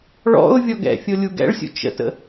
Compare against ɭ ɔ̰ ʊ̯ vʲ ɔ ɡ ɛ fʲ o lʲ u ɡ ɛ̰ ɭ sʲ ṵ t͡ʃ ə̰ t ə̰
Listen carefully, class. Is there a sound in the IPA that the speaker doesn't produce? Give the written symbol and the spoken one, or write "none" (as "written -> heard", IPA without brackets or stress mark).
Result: ɛ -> ɛ̰